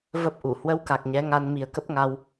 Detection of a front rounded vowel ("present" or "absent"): absent